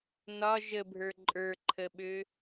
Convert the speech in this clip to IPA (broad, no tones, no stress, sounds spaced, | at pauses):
n ɒ ʒ ə bʱ ə˞ ǃʼ ə˞ ǃʰ ə ɓ ø